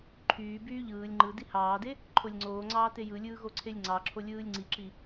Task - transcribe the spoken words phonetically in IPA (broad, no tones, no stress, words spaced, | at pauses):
ǃʰyː byːʎɯːlʲ ŋ͡ǃɯ dihɑːde | ǃʰolʲŋ͡ǀoːŋ͡ǀɑːte jɯlʲɯː ɣoǀʰelʲŋ͡ǀɑǁʰo lʲɯːlʲŋ͡ǀiǁi